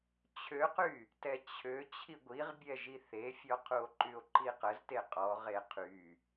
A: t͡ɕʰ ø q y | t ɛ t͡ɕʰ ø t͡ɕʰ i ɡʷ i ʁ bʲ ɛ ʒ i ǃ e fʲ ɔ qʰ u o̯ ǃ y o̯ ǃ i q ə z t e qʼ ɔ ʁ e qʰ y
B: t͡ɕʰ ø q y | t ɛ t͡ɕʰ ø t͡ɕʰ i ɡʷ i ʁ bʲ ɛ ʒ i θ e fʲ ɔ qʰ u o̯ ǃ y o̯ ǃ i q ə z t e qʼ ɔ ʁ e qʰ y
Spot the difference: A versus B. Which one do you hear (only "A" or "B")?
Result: B